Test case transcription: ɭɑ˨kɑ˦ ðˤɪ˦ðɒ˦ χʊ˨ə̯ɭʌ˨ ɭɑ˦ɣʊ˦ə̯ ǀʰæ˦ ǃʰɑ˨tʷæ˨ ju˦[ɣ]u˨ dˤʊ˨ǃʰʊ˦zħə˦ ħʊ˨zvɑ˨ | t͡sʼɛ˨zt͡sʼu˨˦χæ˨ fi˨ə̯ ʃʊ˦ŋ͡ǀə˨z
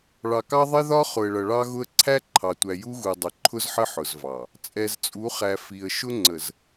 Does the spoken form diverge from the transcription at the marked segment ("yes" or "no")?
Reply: no